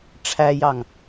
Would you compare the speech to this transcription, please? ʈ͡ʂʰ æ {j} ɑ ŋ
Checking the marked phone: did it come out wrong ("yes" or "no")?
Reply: no